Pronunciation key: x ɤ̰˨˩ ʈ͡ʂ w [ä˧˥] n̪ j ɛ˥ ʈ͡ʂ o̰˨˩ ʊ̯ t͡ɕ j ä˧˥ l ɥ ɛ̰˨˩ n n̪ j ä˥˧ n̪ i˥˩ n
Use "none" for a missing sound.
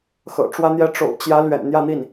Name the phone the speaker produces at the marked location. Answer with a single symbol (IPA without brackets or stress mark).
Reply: ä˥